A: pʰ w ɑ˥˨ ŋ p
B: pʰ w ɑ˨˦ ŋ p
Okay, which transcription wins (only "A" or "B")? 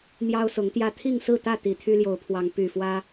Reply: B